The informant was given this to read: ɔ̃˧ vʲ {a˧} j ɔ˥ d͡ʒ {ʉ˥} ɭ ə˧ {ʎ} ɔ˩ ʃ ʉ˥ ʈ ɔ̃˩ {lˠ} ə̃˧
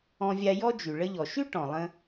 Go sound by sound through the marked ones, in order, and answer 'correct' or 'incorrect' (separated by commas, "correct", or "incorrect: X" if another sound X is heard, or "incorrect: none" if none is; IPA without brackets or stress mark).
correct, incorrect: ʉ˩, correct, correct